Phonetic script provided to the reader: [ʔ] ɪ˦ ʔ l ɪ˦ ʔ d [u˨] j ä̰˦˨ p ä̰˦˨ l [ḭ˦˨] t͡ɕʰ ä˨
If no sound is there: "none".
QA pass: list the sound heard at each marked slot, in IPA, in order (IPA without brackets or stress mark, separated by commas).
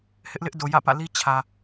h, o˨, i˦